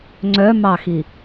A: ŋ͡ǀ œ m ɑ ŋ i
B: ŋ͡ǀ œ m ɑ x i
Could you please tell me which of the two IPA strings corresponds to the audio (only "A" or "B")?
B